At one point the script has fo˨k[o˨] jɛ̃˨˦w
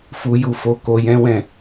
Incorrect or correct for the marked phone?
correct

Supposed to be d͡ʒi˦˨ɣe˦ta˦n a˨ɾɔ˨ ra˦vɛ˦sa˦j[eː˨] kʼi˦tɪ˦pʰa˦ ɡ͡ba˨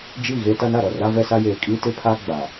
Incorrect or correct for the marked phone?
correct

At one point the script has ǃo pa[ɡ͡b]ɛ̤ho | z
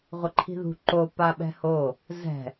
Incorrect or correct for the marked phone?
incorrect: ɓ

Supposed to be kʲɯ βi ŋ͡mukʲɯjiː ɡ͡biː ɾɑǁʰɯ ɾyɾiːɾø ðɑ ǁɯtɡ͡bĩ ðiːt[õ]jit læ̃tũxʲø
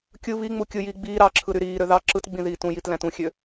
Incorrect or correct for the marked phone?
incorrect: ũ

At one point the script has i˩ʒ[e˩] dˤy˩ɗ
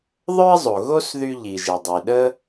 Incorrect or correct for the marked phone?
correct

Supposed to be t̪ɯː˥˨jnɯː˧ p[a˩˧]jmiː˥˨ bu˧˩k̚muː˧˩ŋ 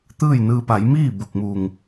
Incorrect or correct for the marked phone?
correct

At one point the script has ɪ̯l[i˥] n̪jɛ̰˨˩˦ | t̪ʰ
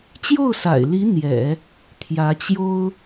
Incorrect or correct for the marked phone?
incorrect: i˧˥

